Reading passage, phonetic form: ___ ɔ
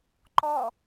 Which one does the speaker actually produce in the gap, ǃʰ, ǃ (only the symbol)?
ǃ